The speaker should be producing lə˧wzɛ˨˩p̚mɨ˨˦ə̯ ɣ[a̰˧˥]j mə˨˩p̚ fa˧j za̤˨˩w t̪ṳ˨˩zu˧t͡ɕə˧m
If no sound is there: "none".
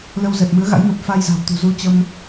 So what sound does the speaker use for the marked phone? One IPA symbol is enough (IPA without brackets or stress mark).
a̰˧˥